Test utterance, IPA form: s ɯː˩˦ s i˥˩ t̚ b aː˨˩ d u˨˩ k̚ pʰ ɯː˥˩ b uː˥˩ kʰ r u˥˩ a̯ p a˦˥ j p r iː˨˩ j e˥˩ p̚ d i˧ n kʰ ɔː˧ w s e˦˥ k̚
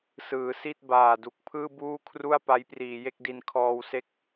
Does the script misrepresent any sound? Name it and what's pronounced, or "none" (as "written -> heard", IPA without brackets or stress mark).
p̚ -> k̚